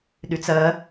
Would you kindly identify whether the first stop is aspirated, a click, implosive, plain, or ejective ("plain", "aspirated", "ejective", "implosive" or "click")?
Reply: implosive